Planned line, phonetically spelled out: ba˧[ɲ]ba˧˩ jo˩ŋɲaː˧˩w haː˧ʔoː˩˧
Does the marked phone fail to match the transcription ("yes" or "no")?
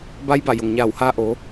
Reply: yes